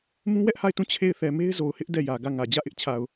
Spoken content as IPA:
m ũ˦ w ɛ˦ ʔ h a˦˨ ɪ̯ t ũ˦˨ t͡ɕʰ e˦˨ ɪ̯ θ ɛ˨ m e˦ ɪ̯ z o˨ ʊ̯ h ɪ˦ ʔ d ɛ˦˨ j ä˨ ɡ ä˦˨ ŋ ä˨ d͡ʑ ä˦˨ ʔ ɪ˦ ʔ t͡ɕʰ a˨ ʊ̯

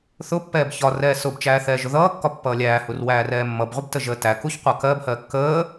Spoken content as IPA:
θ ʊ pː ɛː b ç ɒ r ɛː s ʊ b t͡ʃ æː θ ɛː ʒ ʊ ð ʌː kː ɒ pː ʌː lʲ æː h u r w æː r ɛː mː ʌ b ʁʷ ɪ b t ə ʒ əː t æ k u ç qʷ ʌ k ɜ b h ɜ kː əː

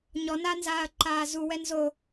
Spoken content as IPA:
ɲ ɔ n a n z aː ɐ̯ ǃ aː z u w ɛ n z o

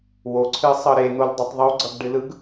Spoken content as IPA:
w o ǀʰ ɨ sˤ ɤ ɾ e n̪ o l dˤ ɛ tˤ ðˤ u ɡ͡ǀ ʌ ɡ ɖ ɨ l ɯ ɡ

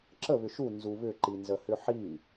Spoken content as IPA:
ǁ ə β ʏ ʃ u n z u β ʏ ǃ i n z ə h ʏ ħ i

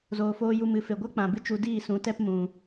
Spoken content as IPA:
z oː˨ f oː˧ j u˧ m ɨ˨ f e˨ ɡʷ a˦ k͡p ã˨ b ɨ˦ t͡ʃ u˧ d iː˦˨ s ũ˨˦ t ɛ˦ p m ũ˨

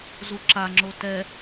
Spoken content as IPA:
z u ǁ a ŋ͡ǁ o t ɛ

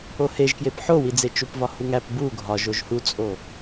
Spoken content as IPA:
o h e ʒ k j e p ħ o w i d͡z e t͡ʃ u p v ɒ h u ŋ æ p b u ɡʱ ɒ ʒ o ʒ h u t͡sʼ o

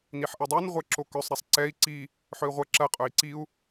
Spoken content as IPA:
n i ħ ʔ ɐ dˤ o n ʁʷ ɛ ǁ o k œ sˤ ɾ ɛ sˤ ǀ ɛ i̯ ǀ i | ħ œ i̯ ʁʷ ɐ ǁ ɐ qʼ œ i̯ ǀ i u̯

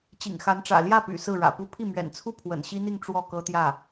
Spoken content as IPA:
t͡ɕ ḭ˨˩ ŋ x a˧˥ n ʈ͡ʂ ä̰˨˩ l j ä˥˩ p y̰˨˩ s ɹ̩˥˩ ɻ ä̰˨˩ p u˥ pʰ i˥˩ m ɥ ɛ̰˨˩ n t͡sʰ u˥˩ pʰ w ə̰˨˩ n ɕ i˥ n̪ i˥˧ ŋ ʈ͡ʂ w ɔ˥˩ k ɤ˥ t̪ j ä˥˩

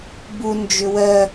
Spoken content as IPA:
b u n d͡ʒ ʏ w ɜ

